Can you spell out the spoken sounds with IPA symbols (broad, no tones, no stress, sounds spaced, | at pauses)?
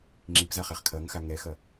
ŋ͡ǁ i p z a χ ɛ χ kʰ ɐ ŋ x a ŋ ɛ x ɐ